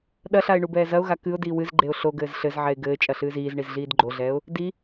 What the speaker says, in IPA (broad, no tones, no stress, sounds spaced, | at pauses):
ɗ ɐ ɬ a ɪ̯ ɳ u b ɛː z ɐ ʊ̯ ɣ a k ɨ ʊ̯ d iː w ɨ z ɡ͡ǃ e ʊ̯ ɬ o ɡ ɘː z ɬ ɘ z ʕ ɛ ɪ̯ ɡ ɘː t͡ʃʼ ɐ ɬ ɨː z iː z ɳ i z ɮ iː d ɡ͡ǃ o ɮ ɛː ʊ̯ | d i